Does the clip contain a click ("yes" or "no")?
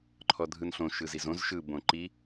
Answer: yes